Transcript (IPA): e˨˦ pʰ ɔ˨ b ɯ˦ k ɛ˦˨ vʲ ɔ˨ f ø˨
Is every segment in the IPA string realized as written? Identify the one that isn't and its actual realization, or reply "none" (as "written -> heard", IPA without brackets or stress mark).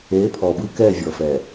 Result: ø˨ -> ɛ˨